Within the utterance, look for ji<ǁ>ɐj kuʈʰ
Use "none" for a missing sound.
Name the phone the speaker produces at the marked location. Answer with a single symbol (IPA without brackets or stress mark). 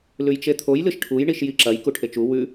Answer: ǁ